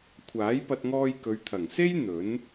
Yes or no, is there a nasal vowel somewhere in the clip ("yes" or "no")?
no